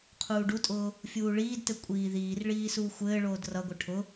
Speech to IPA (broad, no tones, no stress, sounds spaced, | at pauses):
qʰ uː ɖ u tʼ ʊː | fʲ uː ɭ iː d t ɘ kʷʼ iː ð iː r ɭ iː s uː xʷ ɘː ɭ oː d r ʌ ɡʷ ɘ ʈʰ ʊ